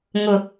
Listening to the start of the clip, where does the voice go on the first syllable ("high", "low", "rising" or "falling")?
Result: low